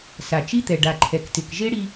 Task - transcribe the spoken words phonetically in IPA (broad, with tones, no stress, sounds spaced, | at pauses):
s a˨ t͡ʃ i˦ t̪ ɛ˨ ɖ a˨ ǃʰ ɛ˨ k t ɪ˨ k ʒ e˦ ɽ i˦